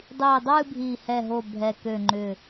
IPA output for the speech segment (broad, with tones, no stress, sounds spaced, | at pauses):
dˤ iː˧˩ dˤ ɨː˥˧ bʱ iː˧˩ h ɛ˥˩ ɦ o˥˩ bʱ ɛ˧˩ k ø˧˩ ŋ͡ǃ ʏ˧˩